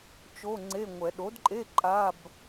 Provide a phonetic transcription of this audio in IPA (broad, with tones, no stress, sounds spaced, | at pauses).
t͡ʃ o˧˥˧ ŋ͡ǀ e˧˥˧ ŋʷ ɛ˨˩˦ ɗ o˩˥ d ǃʼ e˧˥˧ ǃʼ a˧˥˧ b